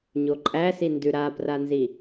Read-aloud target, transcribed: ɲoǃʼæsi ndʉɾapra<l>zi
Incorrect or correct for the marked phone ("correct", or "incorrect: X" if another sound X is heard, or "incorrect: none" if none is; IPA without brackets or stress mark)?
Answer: incorrect: n